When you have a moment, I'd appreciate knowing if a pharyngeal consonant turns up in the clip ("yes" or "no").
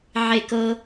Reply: yes